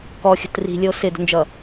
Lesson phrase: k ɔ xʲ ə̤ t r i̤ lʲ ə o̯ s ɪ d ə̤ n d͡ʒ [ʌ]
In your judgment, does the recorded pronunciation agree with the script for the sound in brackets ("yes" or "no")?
yes